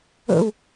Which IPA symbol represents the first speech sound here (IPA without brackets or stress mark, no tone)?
ə̰